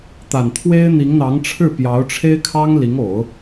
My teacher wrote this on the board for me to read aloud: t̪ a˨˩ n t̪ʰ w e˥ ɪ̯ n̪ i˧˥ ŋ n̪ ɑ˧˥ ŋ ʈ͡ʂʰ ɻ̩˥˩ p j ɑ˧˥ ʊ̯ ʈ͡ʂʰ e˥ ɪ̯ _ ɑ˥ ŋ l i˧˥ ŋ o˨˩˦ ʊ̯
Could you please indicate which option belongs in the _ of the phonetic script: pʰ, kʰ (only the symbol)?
kʰ